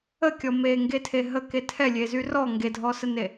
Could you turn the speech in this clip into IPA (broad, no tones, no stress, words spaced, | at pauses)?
əkʲɔ meŋɡetʰe ɦəke tʰɛlʲezy rɔ ŋɡedʱɔsəne